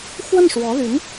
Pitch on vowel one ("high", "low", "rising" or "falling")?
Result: falling